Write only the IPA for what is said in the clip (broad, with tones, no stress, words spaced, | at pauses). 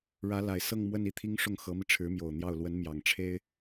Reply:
ɻä˧˥la˨˩ɪ̯ sɤ˥˧ŋmwə˥˧ni˥˩t̪ʰi˥ŋ ʂʊ˥˩ŋxɤ˧˥mi˧ ʈ͡ʂʰɻ̩˧˥mjo˨˩ʊ̯n̪jɑ˥˩ʊ̯ lwə˧˥nmjɑ˨˩ŋʈ͡ʂʰe˥ɪ̯